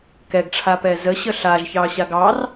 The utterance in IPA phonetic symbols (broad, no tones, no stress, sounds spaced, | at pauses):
k ɛ ɡ ʈ͡ʂʰ a p ɛ z ə ɕ ə ɬ a ʒ ç ɑ ɕ a ɡ ɑ r